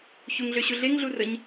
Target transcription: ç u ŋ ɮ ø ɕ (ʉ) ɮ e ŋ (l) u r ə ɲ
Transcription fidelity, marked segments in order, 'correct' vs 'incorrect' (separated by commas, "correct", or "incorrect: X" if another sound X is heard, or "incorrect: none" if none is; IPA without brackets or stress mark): incorrect: u, incorrect: ɮ